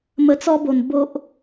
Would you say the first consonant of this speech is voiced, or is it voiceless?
voiced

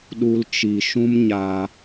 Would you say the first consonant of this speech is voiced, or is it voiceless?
voiced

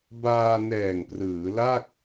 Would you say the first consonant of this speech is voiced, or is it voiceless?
voiced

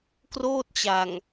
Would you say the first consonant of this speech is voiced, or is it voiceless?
voiceless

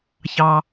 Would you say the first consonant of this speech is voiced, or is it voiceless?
voiceless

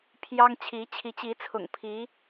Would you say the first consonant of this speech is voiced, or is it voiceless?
voiceless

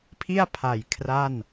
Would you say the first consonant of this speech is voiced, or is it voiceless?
voiceless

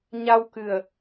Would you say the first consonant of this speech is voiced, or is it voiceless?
voiced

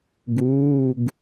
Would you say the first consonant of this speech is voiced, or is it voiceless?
voiced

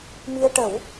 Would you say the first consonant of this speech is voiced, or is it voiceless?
voiced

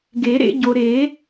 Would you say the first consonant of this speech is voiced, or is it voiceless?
voiced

